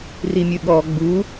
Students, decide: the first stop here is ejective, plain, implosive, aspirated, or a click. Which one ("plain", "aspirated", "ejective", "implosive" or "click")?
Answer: implosive